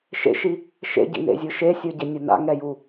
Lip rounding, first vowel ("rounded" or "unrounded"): unrounded